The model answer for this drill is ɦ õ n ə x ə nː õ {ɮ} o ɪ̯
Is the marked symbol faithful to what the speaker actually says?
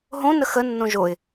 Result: no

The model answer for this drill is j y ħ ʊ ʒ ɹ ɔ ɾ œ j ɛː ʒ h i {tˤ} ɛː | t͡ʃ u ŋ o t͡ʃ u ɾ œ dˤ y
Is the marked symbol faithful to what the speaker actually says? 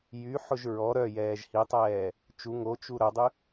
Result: yes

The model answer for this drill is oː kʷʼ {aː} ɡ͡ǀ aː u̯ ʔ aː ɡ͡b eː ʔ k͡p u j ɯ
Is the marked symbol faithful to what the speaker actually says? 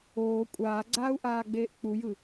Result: yes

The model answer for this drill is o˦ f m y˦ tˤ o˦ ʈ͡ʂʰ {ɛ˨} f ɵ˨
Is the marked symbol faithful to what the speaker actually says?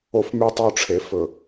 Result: no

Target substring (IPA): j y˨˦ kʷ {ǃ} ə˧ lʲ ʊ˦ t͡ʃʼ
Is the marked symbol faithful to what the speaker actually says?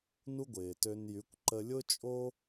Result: yes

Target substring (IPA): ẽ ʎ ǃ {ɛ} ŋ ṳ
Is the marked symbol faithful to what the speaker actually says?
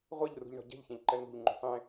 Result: yes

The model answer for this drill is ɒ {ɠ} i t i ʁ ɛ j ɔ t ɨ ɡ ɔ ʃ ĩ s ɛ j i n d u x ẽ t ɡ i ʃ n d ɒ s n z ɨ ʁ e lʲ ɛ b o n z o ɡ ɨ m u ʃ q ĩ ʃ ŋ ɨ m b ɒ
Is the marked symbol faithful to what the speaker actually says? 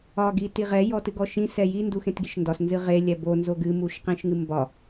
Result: no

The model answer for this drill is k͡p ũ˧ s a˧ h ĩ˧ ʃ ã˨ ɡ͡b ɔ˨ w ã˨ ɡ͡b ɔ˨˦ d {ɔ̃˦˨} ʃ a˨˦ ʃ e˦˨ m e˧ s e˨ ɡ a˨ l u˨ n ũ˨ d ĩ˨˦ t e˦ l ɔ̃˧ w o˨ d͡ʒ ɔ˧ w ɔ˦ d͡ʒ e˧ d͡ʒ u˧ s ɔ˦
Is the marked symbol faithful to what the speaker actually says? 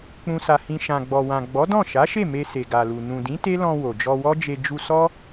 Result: yes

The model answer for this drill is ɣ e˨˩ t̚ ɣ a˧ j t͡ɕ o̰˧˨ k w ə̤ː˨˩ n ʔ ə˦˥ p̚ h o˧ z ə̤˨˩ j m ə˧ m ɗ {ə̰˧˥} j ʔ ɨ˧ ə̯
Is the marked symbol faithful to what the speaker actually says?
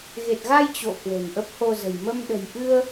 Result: no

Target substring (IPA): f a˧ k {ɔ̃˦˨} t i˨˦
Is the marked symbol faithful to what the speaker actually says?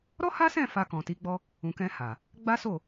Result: no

